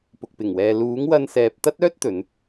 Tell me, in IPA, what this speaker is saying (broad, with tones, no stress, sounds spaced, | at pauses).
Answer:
p ʊ˨ k̚ p ɪ˨˩ ŋ w ɛː˨ l uː˨˥ ŋ w ɐ˧ n s ɛː˨ p̚ t̪ ɐ˥ t̚ œː˥ t̚ t̪ ɵ˨˧ n